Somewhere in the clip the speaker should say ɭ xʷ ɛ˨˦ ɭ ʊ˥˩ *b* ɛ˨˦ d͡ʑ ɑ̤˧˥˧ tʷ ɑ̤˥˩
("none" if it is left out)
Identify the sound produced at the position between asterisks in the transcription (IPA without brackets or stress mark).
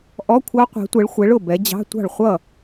b